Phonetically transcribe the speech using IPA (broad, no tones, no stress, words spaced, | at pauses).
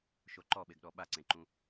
ʃoǃɔɓeɡɗɔ ɓaǀẽǃũ